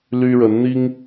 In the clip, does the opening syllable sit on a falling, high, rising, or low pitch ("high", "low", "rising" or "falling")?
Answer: high